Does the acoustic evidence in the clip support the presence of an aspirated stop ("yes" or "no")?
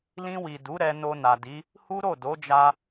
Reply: no